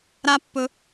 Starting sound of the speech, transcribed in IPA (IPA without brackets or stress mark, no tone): ɾ